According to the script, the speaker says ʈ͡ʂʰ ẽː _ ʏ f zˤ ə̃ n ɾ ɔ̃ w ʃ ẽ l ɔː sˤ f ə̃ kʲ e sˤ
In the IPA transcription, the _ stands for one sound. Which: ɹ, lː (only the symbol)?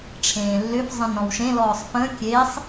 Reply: lː